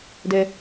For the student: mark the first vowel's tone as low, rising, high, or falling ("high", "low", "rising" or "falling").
low